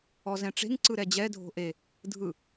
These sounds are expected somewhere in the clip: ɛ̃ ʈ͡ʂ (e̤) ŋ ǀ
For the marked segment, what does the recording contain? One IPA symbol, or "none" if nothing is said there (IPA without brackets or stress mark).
e̤